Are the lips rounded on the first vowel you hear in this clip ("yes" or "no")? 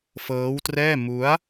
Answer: no